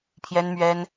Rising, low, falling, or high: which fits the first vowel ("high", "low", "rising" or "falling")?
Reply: high